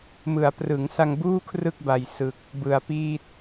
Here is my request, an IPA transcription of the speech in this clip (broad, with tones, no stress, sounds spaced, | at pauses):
m ɯ˩˦ a̯ p r ɯ˩˦ ŋ s a˧ ŋ b uː˥˩ kʰ r ɯ˥˩ k̚ b a˨˩ j s ɯ˨˩ k̚ | b ɯ˨˩ a̯ p iː˥˩ t̚